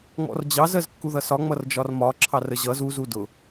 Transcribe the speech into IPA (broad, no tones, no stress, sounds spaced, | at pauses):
ŋ͡m ɔ̰ r d͡ʑ ɑ z ɜ z kː u ð ʌ s ɒ ŋ͡m ʌ r d͡ʒ ɒ r m ɒ ǁʰ ɑ r ə ʑ ʌ z u z u d ʊ